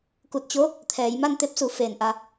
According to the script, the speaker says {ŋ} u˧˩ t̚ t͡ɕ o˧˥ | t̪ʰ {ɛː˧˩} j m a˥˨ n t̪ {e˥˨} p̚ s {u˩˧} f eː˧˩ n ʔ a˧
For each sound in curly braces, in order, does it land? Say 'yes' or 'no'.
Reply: no, no, no, yes

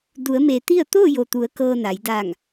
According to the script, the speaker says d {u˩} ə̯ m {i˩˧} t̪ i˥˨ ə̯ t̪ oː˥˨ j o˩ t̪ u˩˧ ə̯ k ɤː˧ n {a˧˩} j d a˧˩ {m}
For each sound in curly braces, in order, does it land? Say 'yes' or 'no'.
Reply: no, no, no, no

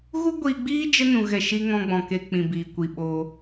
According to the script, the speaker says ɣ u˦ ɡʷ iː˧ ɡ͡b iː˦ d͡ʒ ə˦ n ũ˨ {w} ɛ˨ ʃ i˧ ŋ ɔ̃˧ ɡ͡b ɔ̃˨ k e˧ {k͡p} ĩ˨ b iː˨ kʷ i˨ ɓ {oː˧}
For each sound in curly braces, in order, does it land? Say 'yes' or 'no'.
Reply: no, yes, yes

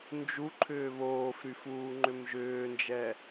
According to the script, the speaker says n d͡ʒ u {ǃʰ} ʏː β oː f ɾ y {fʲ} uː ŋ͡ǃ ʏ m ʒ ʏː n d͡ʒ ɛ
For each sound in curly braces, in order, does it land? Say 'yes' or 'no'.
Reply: yes, no

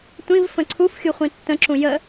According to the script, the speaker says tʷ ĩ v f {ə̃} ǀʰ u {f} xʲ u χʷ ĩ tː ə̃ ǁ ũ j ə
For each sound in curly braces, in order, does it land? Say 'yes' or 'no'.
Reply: yes, yes

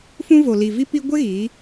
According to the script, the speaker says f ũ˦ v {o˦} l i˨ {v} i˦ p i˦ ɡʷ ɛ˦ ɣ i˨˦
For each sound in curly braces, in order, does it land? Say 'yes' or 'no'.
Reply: no, yes

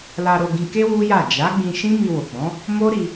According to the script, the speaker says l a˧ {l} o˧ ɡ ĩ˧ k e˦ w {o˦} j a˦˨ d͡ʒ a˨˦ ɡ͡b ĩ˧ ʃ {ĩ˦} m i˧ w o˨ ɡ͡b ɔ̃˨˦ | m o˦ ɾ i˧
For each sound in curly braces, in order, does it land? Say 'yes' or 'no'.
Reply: no, no, yes

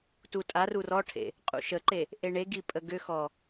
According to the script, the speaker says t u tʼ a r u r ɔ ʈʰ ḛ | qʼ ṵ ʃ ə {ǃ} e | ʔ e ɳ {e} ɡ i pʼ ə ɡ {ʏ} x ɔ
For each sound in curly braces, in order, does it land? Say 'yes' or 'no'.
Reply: yes, yes, yes

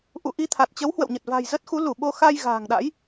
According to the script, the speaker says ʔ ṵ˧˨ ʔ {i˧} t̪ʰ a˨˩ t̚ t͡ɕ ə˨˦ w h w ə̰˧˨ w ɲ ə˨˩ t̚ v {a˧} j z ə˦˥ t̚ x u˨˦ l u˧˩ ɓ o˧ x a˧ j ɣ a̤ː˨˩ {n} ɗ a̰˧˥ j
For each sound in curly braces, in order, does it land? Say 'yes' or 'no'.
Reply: yes, no, no

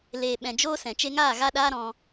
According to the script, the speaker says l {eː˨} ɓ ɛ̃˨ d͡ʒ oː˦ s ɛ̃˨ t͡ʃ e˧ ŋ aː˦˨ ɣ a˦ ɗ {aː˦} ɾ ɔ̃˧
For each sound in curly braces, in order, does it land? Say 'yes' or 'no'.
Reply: yes, yes

